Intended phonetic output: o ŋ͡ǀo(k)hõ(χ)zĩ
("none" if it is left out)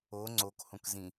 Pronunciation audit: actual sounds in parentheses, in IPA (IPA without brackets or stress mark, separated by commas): k, k